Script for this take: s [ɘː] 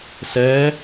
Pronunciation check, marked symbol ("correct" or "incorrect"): incorrect